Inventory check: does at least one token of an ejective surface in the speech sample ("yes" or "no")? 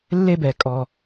yes